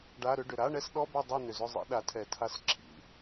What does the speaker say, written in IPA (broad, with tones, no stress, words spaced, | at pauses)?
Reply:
ɖa˧˥˧ɾʏ˧˥˧ ɖʏ˨˩ɾa˧˥˧ɳɛ˧˥˧sɗɔ˧˥˧ bɛ˥˨ dˤɛ˥˨nʏ˨˩zʏ˥˨zˤḭ˧˥˧ ɗa˩˥tʰɛ˨˩tʰa˧˥s ǁʰḭ˧˥˧